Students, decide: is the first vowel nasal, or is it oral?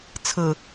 oral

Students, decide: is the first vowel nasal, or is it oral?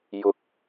oral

